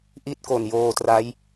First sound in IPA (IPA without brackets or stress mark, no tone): ʔ